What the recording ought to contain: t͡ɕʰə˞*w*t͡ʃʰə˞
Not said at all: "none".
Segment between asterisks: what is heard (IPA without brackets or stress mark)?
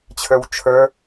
w